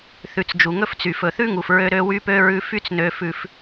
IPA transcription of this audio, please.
θ ʉ˨ t͡s d͡ʒ u˨ ŋ ɵ˦ f t͡s y˨ f ɵ˨ θ ʉ˦ ŋ u˨ f ɹ ø˦ ɾ ø˦ w y˦ p ø˦ ɹ ʉ˦ f y˦ t͡s n ø˦ f ʉ˦ f

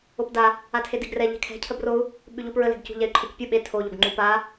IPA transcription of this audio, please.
o p d a | a tʰ e d e ɡ r ɛ ʎ ɛ̤ kʰ ɛ̤ cʰ ə b r o u̯ | ɓ ʉ ʎ u p ɹ ə l ɛ̤ ɡ c ṳ ʎ ɛ y̯ ǃʰ ə c pʲ u ɓ e tʰ o ʎ o ɡ ŋ͡ǃ u p a

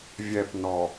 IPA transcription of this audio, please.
vʲ ɛ p n ɔ

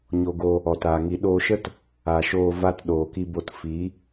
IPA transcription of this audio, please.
ɲ o˧ ɡ o˧ | ɔ˨ t aː˨ ŋ i˨˦ ɗ oː˧ ʃ ə˦ t | a˨ ʃ oː˧ v a˧ t ɗ oː˨ k i˧ b o˧ t f i˨˦

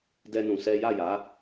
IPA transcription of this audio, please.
d ɛ˦ n ũ˧ s ɛ˦ j a˦˨ j a˨˦

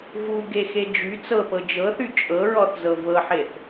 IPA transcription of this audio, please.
v u ɡ e x e d͡ʒ y t͡s ɤ p ɤ d͡ʒ ɤ θ y t͡ʃʼ ɤ ɹ ɔ θ z ɤ v ɤ ħ e θ

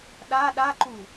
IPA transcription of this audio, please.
ɗ a ɗ a ǃ u

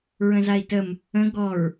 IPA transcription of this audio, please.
ɹ ə̃ z a i̯ t ə m | ə̃ ɡ ɔ ɹ

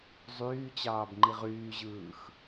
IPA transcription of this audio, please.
zˤ yː t͡ɕ ɑː b ŋ͡ǃ i ʁ yː ʑ ɯː x

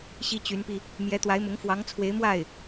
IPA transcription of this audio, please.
ɕ i˥ t͡ɕ y˧˥ n p i˧ | m j ɛ˧˥ t̪ w a˧˥ ɪ̯ m ʊ˧˥ ŋ f w ɑ˧˥ ŋ t͡sʰ w e˧˥ ɪ̯ m w a˥˩ ɪ̯

